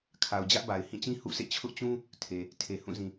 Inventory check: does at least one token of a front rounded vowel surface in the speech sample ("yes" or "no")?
no